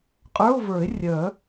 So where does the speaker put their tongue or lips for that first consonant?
uvula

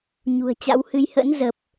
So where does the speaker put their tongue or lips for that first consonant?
palate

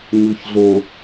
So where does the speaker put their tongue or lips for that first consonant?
palate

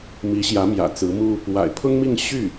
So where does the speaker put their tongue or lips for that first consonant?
lips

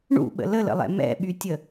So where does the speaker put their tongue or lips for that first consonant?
retroflex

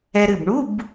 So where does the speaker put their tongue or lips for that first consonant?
tongue tip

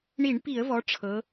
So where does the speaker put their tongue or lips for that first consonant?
retroflex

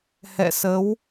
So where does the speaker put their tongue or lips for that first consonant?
throat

